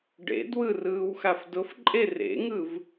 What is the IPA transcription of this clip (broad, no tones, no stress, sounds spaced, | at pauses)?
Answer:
ɖ ḛ d w ɯ r ɯː w x a f d ʊ f ǃʼ e r ḛ ŋ ɯ v